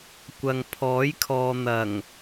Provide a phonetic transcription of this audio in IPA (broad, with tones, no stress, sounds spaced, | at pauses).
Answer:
kʷ ɐ˨ ŋ pʰ ɔː˨˥ j kʰ ɔː˨ n̪ ɐ˨˩ ŋ